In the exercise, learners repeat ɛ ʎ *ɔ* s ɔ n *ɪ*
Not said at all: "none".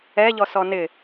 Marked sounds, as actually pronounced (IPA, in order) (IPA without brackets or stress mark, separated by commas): ɔ, ɪ